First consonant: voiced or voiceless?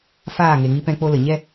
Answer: voiceless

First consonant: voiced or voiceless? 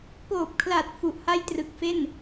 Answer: voiceless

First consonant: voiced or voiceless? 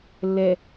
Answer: voiced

